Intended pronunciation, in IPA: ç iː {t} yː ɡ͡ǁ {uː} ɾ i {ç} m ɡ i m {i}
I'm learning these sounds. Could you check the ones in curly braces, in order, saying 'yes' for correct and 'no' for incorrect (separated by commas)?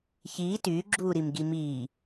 yes, yes, no, no